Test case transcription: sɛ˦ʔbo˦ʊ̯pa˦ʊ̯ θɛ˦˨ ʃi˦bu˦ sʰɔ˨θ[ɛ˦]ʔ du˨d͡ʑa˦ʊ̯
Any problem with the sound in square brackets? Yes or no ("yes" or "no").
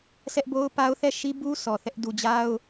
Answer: no